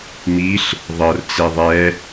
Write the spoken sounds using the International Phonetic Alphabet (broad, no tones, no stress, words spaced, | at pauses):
miɬ | ðˤɤrt͡se ðˤɛ